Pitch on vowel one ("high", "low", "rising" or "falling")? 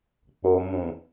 low